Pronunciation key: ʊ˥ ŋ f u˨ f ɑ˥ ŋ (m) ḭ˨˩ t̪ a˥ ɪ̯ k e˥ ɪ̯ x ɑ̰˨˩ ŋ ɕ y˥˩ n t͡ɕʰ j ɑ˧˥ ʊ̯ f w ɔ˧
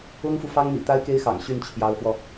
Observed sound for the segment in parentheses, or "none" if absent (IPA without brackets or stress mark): m